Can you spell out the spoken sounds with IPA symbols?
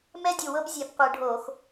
m ɛ˦ dʲ u˨˩ w ɤ˦ b zʲ ɛ˨˩ b qʷ ɯ˧˩˧ ɖʱ o˧˩˧ x

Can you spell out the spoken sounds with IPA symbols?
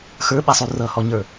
x ə˞ ɓ ɛ sˤ u r ʌ h ɔ ɲ ə˞

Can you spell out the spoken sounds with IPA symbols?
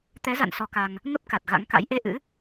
t̪ ɛ˨˦ z a̰˧˨ n s ɔ˧ k a˧ ŋ | ŋ ə˦˥ p̚ k a˨˩ t̚ ɣ a̰˧˥ ŋ k a̰˧˥ j ʔ e˧ ʔ ɨ̰˧˥

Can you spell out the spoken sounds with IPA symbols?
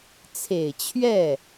t͡sʰ e˨˩ ɪ̯ t͡ɕʰ ɥ ɛ˥˩

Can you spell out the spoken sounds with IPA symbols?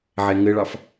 ʕ ɛ ŋ ɘ ɭ ɑ f

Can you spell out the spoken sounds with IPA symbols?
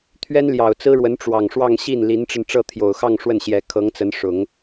t̪ʰ ɥ ɛ˥ n l j ɑ˨˩ ʊ̯ t͡s ɹ̩˥ ɻ w ə˧˥ n ʈ͡ʂ w ɑ˨˩ ŋ ʂ w ɑ˥˧ ŋ ɕ i˥˩ n l i˧˥ n ʈ͡ʂ ə˧ n ʈ͡ʂ ɤ˥˩ t̪ʰ j o˨˩ ʊ̯ x ɑ˥˧ ŋ ʂ w ə˥˩ n ɕ j ɛ˧˥ kʰ ɤ˧˥ ŋ t͡s ə˧˥ n ʂ ʊ˨˩˦ ŋ

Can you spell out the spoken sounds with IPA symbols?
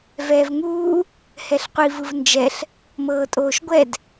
v ɛː v ŋ uː | h ɛ ɬ qʷ i v ɯ v n d͡ʒ ɛ ɬ | m ɤː tʼ oː ʃ ɡʷ ɛ d

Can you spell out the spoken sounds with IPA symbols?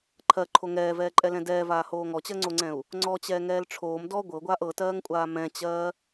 ǃʰ ɜ ǃʰ o ŋ ɛː v ɛː ǃʼ ɛ l ɛ̃ d ɛː v aː h oː ŋ ɔ t͡ɕ ɜ ŋ͡ǀ o ŋ͡ǀ ɛ̃ u̯ | ŋ͡ǀ ɔ t͡ɕ ɛː ŋ ɛː l ʈ͡ʂʰ oː m d ɔ ɡʷ ɤ ɡʷ aː ʔ ɤ t ɜː ŋ kʷʼ aː m ɛ̃ t͡ɕ ɜː

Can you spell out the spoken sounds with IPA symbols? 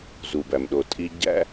z u˨ b æ˨ m ɗ o˨ tʼ i˧ ɟ æ̰˦

